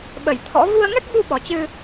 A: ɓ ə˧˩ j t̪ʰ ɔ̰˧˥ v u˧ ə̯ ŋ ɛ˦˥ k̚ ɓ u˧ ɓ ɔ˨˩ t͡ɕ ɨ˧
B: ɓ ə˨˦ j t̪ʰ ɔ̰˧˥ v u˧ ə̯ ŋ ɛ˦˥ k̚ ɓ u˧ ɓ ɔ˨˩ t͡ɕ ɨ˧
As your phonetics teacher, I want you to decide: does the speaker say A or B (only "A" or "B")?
A